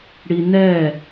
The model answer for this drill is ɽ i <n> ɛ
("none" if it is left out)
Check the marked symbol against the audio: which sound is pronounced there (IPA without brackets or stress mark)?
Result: n